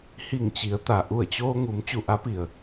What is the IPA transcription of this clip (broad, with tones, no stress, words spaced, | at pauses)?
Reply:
hi˧˩ŋt͡ɕi˩˧ə̯ t̪a˩ʔu˧˩ə̯t͡ɕoː˧ŋu˩˧m t͡ɕu˧˩ʔa˧˥pi˩ə̯